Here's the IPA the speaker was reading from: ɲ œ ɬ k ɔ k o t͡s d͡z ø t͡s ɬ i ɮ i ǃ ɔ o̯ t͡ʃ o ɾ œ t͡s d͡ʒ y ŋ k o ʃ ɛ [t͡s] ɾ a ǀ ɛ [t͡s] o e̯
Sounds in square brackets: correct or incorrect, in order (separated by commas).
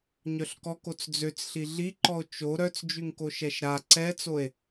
incorrect, correct